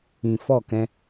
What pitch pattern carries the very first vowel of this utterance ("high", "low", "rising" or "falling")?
low